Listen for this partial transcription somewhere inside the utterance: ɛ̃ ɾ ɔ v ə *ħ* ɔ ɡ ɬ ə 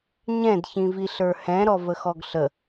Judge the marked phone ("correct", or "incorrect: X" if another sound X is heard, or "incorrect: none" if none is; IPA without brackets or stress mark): incorrect: x